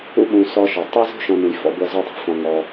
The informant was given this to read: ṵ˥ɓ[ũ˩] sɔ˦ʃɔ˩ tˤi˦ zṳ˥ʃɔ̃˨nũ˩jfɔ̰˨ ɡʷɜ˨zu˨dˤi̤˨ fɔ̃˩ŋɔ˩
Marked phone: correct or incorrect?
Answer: incorrect